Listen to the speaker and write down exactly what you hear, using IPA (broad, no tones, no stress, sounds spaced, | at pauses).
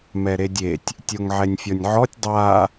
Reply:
m ɛ ɾ e dʲ e tʲ | tʲ o ŋ ʕ ɛ nʲ fʲ ɔ nʲ ʕ ɔ tʲ dˤ a